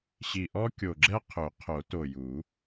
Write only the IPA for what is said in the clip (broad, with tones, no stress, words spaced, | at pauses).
ɕi˨˩ʔɔ˥kʲo˨˩ɡ͡ǁɛ˥ qʰɵ˨˩˦qʰo˨˩˦to˨˩ju˨˩˦